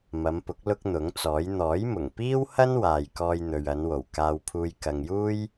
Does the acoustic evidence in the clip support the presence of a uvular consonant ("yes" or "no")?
no